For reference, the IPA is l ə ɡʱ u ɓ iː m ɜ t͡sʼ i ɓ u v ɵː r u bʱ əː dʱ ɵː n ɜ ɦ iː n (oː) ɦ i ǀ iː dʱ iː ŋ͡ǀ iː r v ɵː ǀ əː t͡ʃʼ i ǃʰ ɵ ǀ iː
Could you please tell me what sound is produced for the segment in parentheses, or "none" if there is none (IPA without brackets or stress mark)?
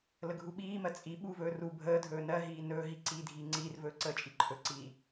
ɵː